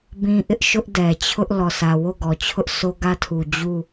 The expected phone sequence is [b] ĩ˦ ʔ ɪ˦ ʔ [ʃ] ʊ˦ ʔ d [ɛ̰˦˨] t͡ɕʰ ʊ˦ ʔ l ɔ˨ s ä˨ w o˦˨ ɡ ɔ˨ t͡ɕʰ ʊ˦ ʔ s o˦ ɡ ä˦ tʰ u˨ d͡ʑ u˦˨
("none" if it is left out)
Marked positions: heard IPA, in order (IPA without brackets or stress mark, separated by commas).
b, ʃ, ɛ˨